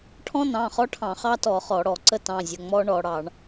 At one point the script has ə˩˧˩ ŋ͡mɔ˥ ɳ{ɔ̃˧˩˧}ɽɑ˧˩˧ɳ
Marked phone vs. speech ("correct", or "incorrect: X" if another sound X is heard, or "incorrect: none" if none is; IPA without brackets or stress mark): incorrect: ɔ˧˩˧